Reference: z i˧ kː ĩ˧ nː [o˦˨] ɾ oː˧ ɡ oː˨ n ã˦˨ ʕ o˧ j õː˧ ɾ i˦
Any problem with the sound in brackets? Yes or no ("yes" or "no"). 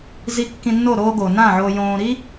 no